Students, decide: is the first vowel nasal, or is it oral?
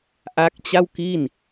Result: oral